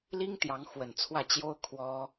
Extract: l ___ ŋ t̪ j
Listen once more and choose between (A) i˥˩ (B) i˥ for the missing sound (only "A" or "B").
B